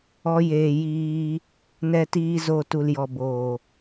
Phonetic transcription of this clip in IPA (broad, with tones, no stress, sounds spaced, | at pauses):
ɔ˧ j eː˨ j iː˧ | n ɛ˧ t iː˧ z o˨ t u˨ l j ɔ˨ b oː˨